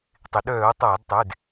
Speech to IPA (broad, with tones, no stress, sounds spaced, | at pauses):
tˤ ɪ˩ ɗ œː˧˩˧ o̯ tˤ aː˧˩˧ d tˤ ɪː˩˧˩ d